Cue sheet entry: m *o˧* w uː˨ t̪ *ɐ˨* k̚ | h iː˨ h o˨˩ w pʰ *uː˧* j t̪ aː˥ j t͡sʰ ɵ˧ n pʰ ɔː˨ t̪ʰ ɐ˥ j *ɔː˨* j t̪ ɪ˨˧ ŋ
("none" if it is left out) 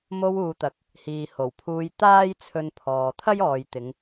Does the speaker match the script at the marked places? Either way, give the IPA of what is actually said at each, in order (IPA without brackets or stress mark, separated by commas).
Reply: o˧, ɐ˨, uː˧, ɔː˨